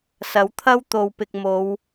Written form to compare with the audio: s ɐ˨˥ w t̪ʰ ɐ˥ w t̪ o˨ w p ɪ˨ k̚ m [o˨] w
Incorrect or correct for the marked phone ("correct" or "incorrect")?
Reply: incorrect